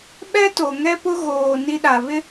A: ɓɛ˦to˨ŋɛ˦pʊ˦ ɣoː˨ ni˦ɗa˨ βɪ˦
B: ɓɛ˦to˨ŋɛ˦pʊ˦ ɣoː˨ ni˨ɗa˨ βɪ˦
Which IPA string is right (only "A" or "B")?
A